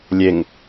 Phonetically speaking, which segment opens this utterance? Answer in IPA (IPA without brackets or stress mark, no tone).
lʲ